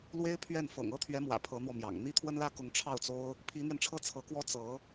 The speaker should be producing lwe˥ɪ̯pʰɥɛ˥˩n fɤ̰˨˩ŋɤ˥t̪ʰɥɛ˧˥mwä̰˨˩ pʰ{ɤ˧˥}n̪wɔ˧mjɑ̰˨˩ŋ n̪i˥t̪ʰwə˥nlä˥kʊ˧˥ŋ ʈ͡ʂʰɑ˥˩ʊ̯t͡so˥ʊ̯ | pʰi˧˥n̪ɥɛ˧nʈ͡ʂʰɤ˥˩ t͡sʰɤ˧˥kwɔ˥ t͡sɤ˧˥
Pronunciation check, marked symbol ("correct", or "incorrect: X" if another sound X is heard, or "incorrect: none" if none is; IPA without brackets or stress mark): correct